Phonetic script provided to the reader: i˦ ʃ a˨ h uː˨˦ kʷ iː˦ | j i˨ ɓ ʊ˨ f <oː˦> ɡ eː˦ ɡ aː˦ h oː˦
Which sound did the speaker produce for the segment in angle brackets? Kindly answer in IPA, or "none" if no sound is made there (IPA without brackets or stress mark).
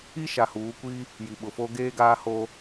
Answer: o˦